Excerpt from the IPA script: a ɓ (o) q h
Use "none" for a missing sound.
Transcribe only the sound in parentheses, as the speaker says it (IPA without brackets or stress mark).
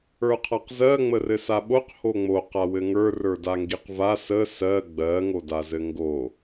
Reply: o